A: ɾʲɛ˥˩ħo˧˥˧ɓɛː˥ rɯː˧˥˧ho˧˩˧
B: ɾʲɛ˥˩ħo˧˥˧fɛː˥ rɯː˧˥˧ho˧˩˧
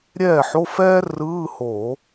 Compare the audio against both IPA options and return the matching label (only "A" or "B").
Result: B